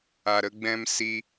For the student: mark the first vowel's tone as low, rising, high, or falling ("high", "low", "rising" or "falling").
low